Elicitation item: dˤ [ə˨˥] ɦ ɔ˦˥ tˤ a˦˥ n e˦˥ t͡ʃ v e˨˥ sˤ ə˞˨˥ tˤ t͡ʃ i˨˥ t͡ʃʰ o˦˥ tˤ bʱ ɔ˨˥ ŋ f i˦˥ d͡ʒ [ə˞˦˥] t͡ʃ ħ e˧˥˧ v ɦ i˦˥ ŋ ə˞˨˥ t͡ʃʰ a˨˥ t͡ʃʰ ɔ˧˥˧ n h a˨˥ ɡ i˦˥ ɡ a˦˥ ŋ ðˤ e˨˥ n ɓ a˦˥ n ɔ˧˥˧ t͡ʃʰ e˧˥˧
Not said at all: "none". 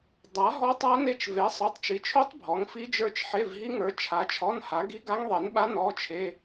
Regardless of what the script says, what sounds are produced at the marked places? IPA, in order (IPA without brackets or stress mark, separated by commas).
a˨˥, ə˞˦˥